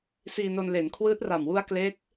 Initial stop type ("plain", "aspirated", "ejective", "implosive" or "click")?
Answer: aspirated